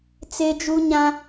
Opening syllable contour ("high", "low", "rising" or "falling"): high